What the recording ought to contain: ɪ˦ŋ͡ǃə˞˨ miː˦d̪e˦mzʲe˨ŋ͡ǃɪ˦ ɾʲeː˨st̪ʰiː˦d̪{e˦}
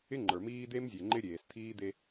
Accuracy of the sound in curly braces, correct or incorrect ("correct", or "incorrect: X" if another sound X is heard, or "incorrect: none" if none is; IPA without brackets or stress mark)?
correct